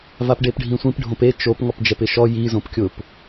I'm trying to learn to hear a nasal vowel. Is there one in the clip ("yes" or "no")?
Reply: yes